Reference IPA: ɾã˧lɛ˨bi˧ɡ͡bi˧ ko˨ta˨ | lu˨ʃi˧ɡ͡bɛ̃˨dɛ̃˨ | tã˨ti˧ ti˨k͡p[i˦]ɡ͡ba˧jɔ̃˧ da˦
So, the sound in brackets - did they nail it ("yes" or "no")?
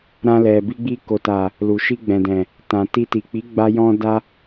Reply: no